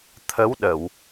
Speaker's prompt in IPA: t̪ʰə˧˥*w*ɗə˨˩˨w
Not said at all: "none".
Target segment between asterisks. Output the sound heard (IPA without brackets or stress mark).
w